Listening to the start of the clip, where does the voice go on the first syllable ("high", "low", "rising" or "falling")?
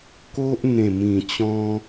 high